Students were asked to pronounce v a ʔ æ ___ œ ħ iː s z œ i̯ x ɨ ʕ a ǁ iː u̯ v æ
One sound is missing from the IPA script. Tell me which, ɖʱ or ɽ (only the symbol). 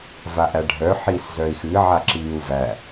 ɖʱ